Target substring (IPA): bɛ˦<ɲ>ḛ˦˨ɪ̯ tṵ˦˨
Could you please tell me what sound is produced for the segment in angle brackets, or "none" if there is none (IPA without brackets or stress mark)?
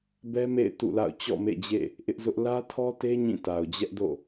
m